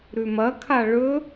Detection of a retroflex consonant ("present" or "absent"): present